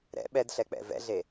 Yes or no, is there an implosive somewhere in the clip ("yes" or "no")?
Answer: yes